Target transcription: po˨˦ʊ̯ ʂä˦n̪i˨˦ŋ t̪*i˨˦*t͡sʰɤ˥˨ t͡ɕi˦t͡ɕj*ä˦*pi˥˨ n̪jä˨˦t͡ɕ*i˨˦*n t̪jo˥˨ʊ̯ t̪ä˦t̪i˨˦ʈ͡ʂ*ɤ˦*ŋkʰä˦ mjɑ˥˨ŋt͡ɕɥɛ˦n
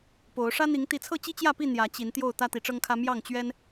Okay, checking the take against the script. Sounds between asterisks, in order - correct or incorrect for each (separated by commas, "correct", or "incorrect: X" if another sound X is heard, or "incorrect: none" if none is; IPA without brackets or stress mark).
correct, incorrect: ä˥˨, correct, correct